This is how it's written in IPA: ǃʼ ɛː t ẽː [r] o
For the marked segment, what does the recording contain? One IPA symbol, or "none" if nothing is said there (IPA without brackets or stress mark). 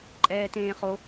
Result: χ